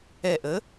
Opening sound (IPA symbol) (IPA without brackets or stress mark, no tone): ɛ